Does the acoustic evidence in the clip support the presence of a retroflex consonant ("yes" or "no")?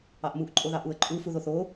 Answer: no